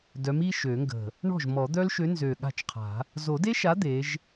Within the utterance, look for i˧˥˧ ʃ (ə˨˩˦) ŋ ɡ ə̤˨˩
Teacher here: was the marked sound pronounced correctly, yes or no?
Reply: no